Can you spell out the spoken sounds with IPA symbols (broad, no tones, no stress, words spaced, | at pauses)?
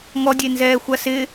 ŋɔdʲenzɛːxʷa sɪ